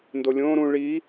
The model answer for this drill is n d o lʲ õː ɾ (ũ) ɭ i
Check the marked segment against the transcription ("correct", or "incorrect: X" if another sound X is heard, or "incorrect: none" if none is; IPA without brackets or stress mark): correct